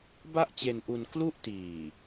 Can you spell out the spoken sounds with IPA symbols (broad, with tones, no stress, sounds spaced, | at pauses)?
b a˥˩ ʔ t͡ɕ e˧ n ʔ u˧ n k l u˥˩ ʔ t iː˨˩